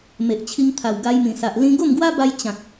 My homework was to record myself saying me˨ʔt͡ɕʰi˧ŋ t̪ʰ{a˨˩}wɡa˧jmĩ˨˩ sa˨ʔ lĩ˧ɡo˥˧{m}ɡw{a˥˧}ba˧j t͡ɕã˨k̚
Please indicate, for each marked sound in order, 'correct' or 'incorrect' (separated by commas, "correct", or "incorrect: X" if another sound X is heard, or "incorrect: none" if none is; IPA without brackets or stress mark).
correct, correct, incorrect: a˦